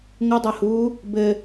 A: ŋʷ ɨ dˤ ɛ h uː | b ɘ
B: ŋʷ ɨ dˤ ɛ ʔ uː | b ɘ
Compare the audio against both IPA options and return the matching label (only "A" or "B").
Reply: A